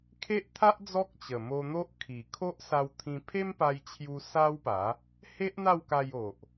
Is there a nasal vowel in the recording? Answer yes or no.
yes